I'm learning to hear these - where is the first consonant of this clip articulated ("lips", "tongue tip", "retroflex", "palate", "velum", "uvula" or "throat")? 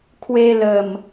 velum